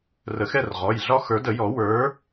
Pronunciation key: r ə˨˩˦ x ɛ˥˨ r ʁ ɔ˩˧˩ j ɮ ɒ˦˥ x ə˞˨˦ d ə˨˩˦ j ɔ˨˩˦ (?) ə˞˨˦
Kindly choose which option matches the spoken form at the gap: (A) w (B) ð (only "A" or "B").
A